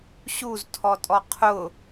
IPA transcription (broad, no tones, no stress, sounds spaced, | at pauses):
ɕ u z tʰ ɔ tʼ ɔ qʰ ʊ